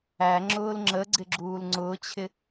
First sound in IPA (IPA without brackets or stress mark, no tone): æ